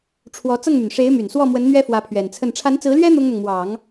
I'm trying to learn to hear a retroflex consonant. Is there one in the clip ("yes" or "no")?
yes